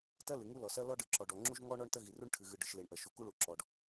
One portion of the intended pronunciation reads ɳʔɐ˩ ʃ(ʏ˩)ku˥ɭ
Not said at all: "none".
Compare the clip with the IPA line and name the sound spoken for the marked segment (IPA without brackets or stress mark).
u˩